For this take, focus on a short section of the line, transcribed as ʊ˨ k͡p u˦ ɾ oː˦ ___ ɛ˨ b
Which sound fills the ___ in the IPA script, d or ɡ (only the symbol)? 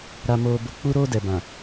d